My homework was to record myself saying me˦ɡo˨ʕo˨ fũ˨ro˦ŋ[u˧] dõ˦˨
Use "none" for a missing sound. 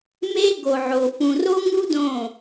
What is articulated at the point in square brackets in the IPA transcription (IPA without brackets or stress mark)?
u˦